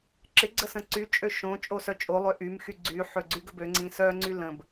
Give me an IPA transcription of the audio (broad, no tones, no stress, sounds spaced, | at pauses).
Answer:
ǁ ɪ ɡ͡ǀ ə s ə̃ ǀ y t͡ʃʼ ø ʃ õ t͡ʃʼ o s œ t͡ʃʼ o lˠ ø ʔ y m x y ɡ͡ǀ y ħ ø ɡ͡ǀ y ɡ ə b ø ŋ͡ǀ ĩ s œ ŋ͡ǀ y l ə̃ b